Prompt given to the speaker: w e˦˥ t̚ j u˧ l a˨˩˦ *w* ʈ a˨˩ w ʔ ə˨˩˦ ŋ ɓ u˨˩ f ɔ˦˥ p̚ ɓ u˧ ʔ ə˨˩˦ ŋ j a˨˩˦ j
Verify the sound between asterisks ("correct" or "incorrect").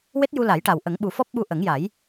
incorrect